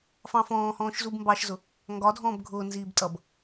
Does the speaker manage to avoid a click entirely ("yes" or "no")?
yes